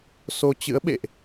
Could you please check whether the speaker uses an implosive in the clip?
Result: yes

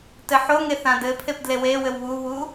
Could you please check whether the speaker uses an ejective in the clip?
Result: no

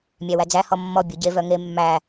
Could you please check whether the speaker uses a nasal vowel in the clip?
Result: no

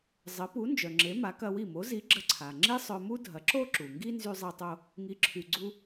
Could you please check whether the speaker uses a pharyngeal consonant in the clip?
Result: no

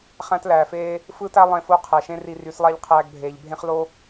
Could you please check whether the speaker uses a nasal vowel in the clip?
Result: yes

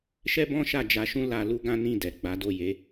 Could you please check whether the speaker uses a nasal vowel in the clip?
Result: yes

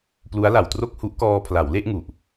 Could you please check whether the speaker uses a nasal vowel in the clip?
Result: no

